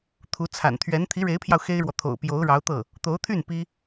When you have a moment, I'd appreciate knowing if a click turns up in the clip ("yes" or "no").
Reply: no